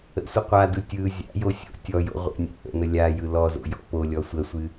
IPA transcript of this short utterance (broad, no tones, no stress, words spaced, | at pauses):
ə̰sʷə qʷadɯ tʲɯ zʲa̰jo sʲo̰ tʲɔjo̰ ʁʷə̰ nʲa̰ʔə̰nə lʲa jɯlɔzo̰ jɔ̰polʲɔ sʷəsʷɨ